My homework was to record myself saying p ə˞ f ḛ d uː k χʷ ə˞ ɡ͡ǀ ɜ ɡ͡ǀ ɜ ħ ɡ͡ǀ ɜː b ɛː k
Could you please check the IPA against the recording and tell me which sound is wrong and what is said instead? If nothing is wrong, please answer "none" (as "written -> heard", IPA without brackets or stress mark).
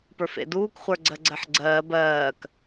ɛː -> ɜː